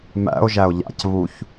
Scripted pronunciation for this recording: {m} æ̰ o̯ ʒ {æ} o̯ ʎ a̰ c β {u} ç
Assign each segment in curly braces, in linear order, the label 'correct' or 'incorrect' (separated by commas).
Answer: correct, correct, correct